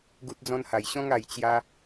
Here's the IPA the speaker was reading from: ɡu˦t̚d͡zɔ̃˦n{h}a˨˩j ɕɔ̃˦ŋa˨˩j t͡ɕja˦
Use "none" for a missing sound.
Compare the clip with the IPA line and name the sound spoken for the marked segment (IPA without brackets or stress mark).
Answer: h